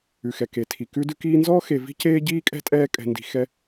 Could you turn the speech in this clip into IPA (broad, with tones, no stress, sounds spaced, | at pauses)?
ʉ˩ x ɛ˩ k e˩ tʰ i˩ k ʉ˦ d ʉ˦ k iː˦ n z ɔː˥ x e˨ v i̤˥ c eː˥ ɟ iː˥ kʼ ɛ̤˥ tʼ ɛː˦ kʼ ɛ̤˨ n d i̤˨ x ɛ˦